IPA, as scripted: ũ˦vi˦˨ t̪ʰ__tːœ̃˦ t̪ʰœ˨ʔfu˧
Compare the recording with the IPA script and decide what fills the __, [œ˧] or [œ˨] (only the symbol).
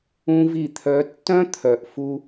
œ˧